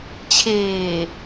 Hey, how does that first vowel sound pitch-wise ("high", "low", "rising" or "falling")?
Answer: low